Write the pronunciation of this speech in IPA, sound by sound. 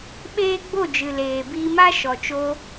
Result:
ɓ eː˦ ɡ͡b o˦˨ d͡ʒ ɨ˨ l eː˨ b iː˧ m a˦ ʃ ɔ˨ t͡ʃ o˧

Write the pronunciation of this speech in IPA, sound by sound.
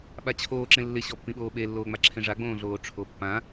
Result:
ɓ a t͡ɕʰ oː ǁ ẽ lː ɪ ɕ ɔ pː ĩ ɓ oː ɓ e lː oː ŋ͡m a ǁʰ ẽ ʐ a ɡ͡b õː ɮ oː ʈ͡ʂʰ o pː ã

